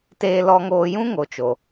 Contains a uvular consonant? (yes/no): no